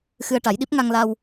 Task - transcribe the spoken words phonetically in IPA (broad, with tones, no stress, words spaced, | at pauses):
xɨ˧ə̯ʈa˨˩˦jɗi˦˥p̚ ŋa˧ŋla˧w